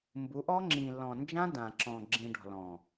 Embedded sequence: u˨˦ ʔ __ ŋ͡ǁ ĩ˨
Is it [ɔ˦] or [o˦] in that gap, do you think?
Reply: ɔ˦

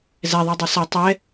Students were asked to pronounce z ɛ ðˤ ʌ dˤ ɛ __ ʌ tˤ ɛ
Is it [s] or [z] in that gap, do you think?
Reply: s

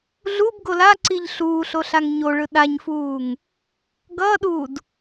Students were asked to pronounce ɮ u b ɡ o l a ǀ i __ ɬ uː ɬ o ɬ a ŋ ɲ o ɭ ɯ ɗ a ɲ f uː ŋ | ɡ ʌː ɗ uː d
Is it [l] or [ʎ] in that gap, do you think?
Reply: ʎ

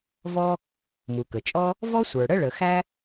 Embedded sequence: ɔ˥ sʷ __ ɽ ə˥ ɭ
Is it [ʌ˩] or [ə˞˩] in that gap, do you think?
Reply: ə˞˩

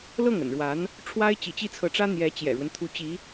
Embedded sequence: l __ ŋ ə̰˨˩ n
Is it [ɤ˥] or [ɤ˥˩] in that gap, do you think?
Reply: ɤ˥˩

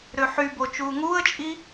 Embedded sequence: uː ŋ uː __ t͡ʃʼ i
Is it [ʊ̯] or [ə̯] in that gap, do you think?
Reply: ə̯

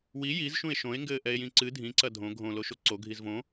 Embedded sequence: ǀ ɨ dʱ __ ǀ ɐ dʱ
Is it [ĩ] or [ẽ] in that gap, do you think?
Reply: ĩ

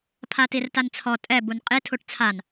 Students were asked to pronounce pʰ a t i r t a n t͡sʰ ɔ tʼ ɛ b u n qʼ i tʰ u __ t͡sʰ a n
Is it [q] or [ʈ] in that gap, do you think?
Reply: ʈ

